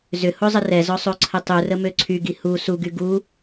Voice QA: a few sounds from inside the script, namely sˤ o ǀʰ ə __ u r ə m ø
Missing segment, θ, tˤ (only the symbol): tˤ